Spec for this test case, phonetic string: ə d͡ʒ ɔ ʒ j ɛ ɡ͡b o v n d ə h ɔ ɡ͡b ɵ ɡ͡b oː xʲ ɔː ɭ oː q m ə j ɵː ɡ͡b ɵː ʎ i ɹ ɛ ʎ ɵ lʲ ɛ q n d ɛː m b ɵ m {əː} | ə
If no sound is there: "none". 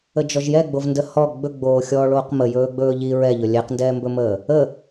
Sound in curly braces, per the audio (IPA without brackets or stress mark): əː